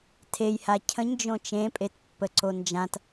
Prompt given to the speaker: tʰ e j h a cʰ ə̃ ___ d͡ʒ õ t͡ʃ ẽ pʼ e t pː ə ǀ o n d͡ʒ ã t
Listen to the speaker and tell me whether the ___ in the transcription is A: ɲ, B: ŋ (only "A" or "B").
A